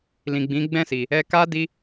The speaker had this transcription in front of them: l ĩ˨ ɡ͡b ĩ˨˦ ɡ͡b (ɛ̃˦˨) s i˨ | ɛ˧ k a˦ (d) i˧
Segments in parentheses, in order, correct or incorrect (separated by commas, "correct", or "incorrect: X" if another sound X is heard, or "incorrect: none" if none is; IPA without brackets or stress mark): correct, correct